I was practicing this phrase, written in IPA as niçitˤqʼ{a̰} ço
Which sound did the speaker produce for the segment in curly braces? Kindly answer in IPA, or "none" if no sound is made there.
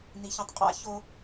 a̰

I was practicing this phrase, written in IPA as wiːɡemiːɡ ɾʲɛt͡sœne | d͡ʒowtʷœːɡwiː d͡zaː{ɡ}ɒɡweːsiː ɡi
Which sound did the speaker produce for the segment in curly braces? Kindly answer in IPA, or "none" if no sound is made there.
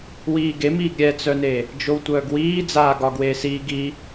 ɡ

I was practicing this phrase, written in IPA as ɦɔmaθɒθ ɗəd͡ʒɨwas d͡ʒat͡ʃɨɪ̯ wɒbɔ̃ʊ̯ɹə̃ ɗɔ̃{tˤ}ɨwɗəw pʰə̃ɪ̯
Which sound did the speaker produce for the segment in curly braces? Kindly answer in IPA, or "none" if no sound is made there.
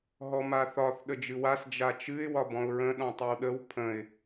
tˤ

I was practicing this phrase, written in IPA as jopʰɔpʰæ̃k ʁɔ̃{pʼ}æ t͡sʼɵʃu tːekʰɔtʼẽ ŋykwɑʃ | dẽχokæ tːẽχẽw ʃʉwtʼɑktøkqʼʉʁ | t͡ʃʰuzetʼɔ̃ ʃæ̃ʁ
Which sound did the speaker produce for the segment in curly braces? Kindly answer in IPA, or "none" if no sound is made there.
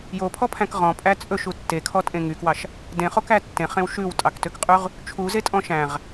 pʼ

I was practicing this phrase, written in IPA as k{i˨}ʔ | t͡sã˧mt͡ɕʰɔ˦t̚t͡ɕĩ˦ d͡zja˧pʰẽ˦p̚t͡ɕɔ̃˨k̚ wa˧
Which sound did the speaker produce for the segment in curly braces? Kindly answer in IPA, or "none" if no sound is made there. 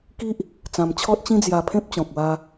i˦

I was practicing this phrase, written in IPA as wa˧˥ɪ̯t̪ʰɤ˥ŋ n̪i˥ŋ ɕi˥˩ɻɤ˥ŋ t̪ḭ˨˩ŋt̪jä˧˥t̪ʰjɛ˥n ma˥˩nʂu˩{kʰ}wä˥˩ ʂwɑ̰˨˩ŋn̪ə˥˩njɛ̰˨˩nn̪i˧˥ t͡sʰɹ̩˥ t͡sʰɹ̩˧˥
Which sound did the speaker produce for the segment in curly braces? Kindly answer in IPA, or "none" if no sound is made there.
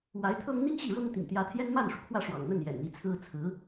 kʰ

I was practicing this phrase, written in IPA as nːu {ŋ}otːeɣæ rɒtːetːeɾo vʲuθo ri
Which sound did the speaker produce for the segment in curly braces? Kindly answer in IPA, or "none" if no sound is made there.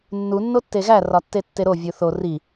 nː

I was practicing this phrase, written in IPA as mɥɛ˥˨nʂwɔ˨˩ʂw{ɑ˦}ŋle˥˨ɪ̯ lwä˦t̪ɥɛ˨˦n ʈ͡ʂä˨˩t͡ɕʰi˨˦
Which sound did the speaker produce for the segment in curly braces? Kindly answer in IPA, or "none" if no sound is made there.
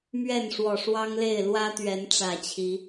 ɑ˦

